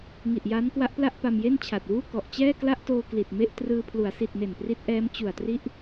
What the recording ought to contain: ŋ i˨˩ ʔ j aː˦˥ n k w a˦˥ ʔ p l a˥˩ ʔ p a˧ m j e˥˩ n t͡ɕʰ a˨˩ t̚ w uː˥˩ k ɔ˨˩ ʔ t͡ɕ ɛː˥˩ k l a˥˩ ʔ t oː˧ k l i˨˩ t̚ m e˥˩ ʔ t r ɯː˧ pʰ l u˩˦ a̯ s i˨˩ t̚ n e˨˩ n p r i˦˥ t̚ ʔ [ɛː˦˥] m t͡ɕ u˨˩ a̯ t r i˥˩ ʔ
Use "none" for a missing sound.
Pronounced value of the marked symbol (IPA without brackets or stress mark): ɛː˦˥